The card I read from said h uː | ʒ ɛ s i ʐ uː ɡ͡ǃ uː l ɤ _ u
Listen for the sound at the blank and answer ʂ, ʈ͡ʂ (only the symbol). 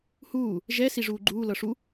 ʂ